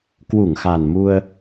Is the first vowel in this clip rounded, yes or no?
yes